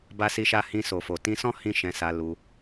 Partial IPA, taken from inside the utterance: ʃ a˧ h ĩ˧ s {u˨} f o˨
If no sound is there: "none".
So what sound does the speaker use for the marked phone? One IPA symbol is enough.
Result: o˨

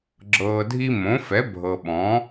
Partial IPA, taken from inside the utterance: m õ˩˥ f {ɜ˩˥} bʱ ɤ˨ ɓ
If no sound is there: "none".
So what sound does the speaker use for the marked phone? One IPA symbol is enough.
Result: ɛ˩˥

